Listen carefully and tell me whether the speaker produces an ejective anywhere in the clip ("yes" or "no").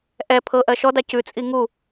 yes